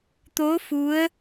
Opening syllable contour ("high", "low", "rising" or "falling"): rising